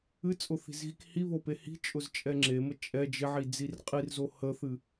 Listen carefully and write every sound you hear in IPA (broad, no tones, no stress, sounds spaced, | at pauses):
ɨ t͡sʼ ʊ θ i̤ z ɣ i k h i β o p e h i̤ t͡ʃʼ ʊ z t͡ʃʼ ɛ ŋ͡ǁ e m ə t͡ʃʼ ɛ d͡ʒ ɪ ʕ i d͡z i r qʼ i r z o h ə θ ɨ